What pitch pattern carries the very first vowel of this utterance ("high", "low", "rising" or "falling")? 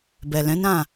low